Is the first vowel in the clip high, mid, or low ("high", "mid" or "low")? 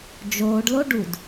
mid